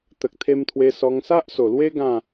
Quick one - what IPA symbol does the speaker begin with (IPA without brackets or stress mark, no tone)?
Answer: t̪